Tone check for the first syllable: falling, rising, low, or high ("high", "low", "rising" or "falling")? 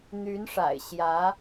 rising